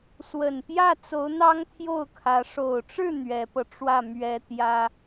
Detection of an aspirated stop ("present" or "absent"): present